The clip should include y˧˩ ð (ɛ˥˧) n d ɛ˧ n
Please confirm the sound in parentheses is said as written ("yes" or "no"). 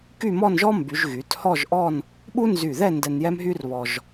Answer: yes